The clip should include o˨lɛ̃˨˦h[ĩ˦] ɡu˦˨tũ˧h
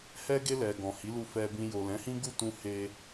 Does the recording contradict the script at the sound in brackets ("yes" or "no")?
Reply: no